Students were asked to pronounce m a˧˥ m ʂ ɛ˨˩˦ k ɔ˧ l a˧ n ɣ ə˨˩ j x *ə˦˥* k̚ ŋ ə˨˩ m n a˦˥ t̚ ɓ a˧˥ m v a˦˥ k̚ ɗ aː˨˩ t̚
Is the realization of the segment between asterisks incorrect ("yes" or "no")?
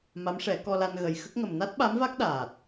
no